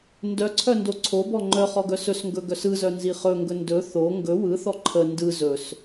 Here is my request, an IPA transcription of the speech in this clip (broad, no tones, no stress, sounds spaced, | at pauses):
n d œ ǀʰ œ n d o ǀʰ o b ɔ ŋ͡ǃ œ χ ɔ ɡ œ s ɵ s ŋ ɡ ɵ ɡ œ s ɯ z œ n z i χ ɵ ŋ ɡ ɵ n d ɵ θ o ŋ ɡ ɵ w ɯ θ ɔ ǃʰ ə n d ɯ z ɵ s